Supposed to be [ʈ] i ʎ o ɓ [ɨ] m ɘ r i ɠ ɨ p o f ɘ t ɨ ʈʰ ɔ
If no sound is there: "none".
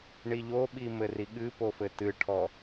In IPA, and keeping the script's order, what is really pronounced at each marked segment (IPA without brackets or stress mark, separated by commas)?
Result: ɳ, i